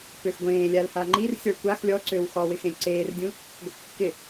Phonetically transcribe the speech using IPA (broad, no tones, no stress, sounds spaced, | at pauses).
p ø x ɡʷ ẽː lʲ a l h a ŋ͡ǃ i r sʲ ɔ ɭ kʷ a x lʲ ɔ ǀ ø w x ɔ w ɪ x ẽ lʲ ǀ eː r dʲ ũ | ɡʷ ɪ kː ɪ